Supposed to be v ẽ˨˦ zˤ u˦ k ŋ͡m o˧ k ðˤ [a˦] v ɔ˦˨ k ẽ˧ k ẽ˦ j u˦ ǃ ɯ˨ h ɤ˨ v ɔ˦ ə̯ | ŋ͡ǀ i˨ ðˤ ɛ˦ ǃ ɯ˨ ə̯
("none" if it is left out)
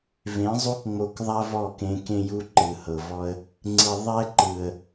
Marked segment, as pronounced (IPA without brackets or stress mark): a˦